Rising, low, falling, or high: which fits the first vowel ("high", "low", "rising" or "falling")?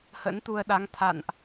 rising